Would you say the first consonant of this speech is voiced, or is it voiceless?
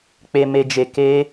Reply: voiceless